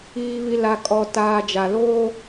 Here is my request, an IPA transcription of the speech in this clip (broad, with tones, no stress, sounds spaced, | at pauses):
iː˨ β i˨ l a˨ kʼ ɔ˨ t aː˨ d͡ʒ a˨ l oː˦